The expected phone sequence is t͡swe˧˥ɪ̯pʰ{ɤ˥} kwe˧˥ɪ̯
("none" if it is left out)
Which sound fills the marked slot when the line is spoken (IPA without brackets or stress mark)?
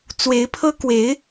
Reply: ɤ˥